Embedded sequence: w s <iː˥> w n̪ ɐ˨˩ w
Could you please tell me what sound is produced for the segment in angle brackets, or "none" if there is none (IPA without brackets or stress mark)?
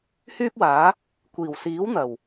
iː˨˥